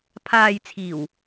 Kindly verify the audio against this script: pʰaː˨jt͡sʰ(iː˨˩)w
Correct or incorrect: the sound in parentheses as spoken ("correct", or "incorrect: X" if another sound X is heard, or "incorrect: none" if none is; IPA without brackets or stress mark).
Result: correct